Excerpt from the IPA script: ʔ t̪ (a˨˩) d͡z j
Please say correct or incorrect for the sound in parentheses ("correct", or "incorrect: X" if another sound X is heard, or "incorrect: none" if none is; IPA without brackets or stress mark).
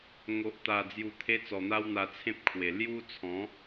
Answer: correct